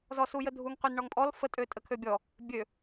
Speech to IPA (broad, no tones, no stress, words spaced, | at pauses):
zɔsujədʱuŋ qynɳɔŋpʼɔl fə tʼøtʼəkʰøbʲɔ | bʲø